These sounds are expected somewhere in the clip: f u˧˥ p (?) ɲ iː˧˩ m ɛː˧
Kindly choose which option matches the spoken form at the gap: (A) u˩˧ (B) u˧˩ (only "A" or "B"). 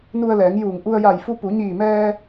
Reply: A